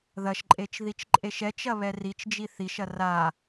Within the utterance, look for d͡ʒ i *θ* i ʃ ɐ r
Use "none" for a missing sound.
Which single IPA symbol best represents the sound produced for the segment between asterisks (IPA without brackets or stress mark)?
θ